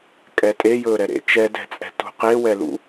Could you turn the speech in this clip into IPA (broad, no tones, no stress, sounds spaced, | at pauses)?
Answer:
kʼ ɛ tʼ e j ɵː ɾ ɛ ɾ ḛ t͡ʃ ɛ d ɛ̤ t͡sʼ ɛ̤ t ṳ q e w ɛ l ṵ